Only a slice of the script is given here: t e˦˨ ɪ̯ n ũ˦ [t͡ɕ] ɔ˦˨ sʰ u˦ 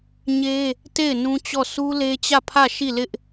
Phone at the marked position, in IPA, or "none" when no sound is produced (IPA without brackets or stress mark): t͡ɕ